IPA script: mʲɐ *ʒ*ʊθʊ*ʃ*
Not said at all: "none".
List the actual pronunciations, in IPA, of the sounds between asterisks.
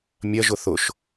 ʒ, ʃ

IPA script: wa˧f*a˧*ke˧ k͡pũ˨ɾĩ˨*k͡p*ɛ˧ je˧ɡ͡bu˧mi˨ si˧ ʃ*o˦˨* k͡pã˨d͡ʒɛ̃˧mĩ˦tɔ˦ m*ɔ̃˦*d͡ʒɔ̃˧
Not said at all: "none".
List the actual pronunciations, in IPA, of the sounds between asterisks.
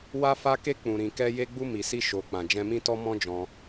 a˧, k, o˨, ɔ̃˦

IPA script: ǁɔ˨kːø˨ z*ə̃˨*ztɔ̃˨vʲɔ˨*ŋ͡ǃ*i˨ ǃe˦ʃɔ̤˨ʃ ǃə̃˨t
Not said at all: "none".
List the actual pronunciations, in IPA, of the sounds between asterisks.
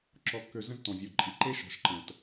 ə̃˦, ǃʼ

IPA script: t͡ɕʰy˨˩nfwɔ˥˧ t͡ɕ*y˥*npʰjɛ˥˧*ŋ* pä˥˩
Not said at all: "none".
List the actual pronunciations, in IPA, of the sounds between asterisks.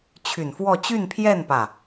y˥˧, n

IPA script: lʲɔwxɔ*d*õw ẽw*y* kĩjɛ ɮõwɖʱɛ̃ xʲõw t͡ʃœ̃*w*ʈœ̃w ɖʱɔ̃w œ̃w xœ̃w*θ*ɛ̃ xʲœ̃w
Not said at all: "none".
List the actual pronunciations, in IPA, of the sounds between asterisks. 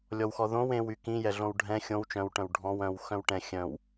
ð, y, w, ʈ

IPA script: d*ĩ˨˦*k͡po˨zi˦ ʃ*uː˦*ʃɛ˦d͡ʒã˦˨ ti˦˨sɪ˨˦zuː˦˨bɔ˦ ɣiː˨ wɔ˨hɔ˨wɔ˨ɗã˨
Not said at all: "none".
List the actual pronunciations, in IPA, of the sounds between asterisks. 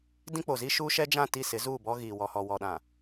ĩ˦, uː˦

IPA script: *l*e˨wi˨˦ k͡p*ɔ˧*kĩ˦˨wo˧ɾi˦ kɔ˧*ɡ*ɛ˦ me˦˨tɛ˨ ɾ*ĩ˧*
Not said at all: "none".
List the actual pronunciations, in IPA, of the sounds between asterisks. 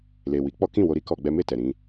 l, ɔ˦, ɡ͡b, ĩ˧

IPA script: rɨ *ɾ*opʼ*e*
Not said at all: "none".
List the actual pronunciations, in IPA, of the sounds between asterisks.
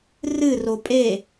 r, e

